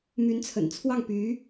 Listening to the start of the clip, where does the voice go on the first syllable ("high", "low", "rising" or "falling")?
rising